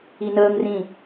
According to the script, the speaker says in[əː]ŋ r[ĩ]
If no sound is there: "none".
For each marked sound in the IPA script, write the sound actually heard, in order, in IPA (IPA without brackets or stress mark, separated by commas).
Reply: əː, ĩ